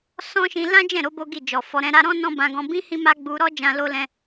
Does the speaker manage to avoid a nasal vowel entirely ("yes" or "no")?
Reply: no